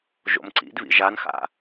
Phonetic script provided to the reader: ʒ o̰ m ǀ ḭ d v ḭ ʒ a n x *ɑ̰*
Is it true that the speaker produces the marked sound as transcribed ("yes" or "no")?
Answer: no